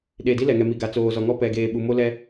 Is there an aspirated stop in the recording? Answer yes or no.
no